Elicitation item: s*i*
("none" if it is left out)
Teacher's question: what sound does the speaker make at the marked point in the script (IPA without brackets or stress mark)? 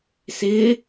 ɪ